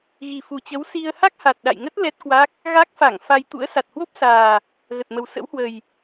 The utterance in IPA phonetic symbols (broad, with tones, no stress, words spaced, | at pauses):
ɣi˨˩fu˨˩t͡ɕə˨˦w si˧ə̯ ha˦˥k̚ha˨˩t̚ ɗa̰˧˨jŋə˦˥t̚ lɛ˦˥t̚kwa˦˥k̚ | ɣa˦˥k̚fa˧˩ŋ fa˧j t̪ṵ˧˥ə̯sa˨˩t̚hwo˦˥p̚saː˨˩ | ɣə˨˩t̚mə˨˩w sə̰˧˥whwə˨˩j